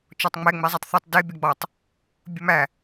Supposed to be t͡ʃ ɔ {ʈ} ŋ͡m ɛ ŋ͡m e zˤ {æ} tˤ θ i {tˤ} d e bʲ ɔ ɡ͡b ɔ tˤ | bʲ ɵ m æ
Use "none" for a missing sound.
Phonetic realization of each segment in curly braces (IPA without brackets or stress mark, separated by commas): tˤ, ɛ, tˤ